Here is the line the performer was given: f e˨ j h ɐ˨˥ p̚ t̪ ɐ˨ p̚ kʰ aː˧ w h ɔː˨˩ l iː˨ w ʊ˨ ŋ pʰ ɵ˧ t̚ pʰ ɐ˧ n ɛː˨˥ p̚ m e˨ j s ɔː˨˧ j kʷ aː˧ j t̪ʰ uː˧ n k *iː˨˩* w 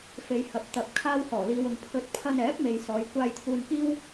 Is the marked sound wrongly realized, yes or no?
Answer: yes